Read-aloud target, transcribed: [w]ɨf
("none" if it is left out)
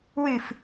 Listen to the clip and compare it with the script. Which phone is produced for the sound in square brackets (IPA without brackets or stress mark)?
w